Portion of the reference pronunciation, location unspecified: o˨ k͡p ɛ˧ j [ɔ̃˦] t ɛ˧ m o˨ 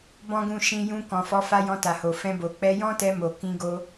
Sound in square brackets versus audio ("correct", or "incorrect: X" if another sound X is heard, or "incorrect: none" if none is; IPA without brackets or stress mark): correct